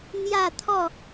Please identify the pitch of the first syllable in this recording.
falling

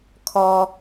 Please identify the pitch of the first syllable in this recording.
low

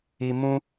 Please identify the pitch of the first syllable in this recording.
low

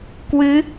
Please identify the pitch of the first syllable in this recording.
rising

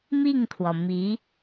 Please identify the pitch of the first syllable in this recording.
falling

